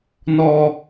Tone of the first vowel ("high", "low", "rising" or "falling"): low